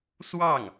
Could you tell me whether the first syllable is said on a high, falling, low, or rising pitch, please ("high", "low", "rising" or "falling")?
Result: falling